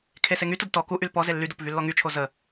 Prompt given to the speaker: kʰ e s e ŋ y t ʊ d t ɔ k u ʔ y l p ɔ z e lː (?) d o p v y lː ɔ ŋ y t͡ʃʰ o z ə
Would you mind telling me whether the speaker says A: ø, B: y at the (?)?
B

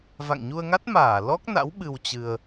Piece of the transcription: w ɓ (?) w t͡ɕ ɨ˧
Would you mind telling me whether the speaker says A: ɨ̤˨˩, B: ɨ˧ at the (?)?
B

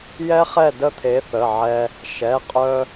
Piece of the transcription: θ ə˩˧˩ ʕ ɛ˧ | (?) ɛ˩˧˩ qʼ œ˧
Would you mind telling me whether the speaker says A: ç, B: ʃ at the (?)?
B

